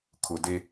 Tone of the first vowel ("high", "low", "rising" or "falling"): low